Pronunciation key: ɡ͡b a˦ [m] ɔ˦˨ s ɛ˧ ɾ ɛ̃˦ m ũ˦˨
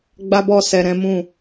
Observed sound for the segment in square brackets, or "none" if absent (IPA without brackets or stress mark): b